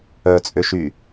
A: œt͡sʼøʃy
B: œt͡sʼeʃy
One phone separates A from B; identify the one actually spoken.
A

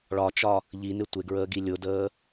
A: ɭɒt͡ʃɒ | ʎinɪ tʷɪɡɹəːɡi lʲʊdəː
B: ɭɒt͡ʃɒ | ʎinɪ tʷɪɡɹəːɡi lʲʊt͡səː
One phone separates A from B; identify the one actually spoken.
A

